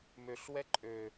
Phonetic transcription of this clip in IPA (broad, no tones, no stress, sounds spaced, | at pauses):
m ø ɬ w ɛ ǃʼ ø